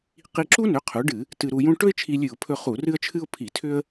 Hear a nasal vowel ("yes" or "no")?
yes